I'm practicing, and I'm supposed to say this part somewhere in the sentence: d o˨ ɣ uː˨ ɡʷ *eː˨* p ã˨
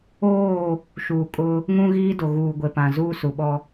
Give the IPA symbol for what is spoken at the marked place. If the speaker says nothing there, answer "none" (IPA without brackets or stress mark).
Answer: e˨